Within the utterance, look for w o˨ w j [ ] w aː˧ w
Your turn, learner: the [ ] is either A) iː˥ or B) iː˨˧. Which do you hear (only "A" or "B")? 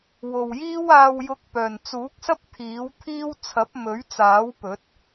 A